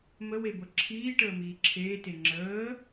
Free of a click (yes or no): no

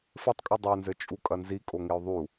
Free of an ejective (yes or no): no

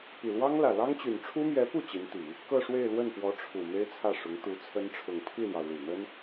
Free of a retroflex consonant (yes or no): no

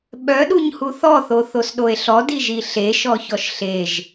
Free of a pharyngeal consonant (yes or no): yes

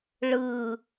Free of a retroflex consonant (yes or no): no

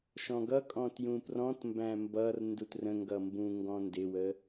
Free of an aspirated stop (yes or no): yes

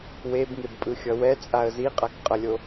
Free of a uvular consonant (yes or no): no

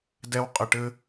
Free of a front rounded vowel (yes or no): yes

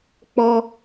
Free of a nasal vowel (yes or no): yes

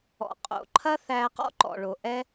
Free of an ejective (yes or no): no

